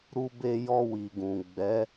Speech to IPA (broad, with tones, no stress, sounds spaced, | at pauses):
ɾ u˧ b e˧ j ɔ˧ w i˨ ɡ ũ˨ ɡ͡b ɛ˨˦